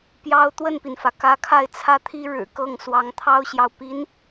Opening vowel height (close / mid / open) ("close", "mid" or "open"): open